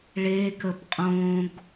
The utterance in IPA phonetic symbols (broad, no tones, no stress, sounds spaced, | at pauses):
ɭ e k ə p qʼ õ ɡ